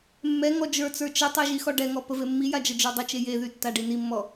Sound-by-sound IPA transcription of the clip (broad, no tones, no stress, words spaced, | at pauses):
mːɛ ŋɔd͡ʒə˞t͡sə˞ t͡ʃətˤɛ ʒixɔɖɛŋɔ pəvemːija d͡ʒəd͡ʒə˞dˤət͡ʃe jeðy tːaɖinimːɔ